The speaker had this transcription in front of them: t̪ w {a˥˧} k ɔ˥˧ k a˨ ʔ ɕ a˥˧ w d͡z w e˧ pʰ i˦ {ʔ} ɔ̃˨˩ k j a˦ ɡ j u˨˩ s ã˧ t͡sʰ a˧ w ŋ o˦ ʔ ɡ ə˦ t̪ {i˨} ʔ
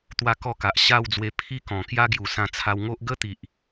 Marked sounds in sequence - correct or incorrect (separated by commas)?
correct, incorrect, correct